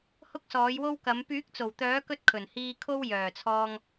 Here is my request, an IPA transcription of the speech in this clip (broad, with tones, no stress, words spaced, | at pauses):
hʊ˥k̚sɔː˨˥jwo˥wkɐ˨˥m pyː˨˥k̚t͡so˨˩wt̪œː˨˥kɵ˧t̚ kʰɵ˨˩nhiː˧kʰo˥w jœː˨˩t͡sʰɔː˧ŋ